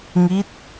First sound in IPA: ŋ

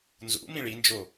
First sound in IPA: n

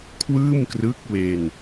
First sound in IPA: kʰ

